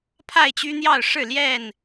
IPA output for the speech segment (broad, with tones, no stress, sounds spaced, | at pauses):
pʰ a˥˨ ɪ̯ t͡ɕ y˦ n̪ j ɑ˥˨ ʊ̯ ʂ ɻ̩˥˨ l j ɛ˥˨ n